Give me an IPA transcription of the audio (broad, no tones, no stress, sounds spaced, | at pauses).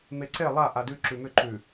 m e ǀ e lˠ a ʔ a d ʉ ǁ ʉ m ʏ ǃ ʉ